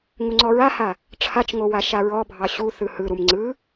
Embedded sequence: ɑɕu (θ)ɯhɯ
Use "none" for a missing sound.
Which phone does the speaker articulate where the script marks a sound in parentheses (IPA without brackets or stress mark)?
θ